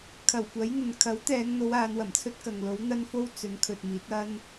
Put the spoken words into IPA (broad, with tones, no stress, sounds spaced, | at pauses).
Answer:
kʰ ɐ˨˩ w kʷ ɐ˨˥ j n̪ ɵ˨ n kʰ ɐ˨˥ w t̪ ɛː˨˧ ŋ n̪ o˨˧ w aː˨˧ n w ɐ˨˩ m t͡sʰ ɵ˥ t̚ k ɐ˨ ŋ l o˨˥ w n̪ ɐ˥ n f o˥ w t͡s ɵ˨˥ n kʰ ɵ˨ t̚ m iː˨˥ t̚ ɐ˥ n